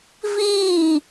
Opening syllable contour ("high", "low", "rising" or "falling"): falling